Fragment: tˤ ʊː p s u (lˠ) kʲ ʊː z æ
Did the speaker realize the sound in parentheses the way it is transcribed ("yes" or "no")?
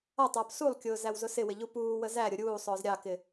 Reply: yes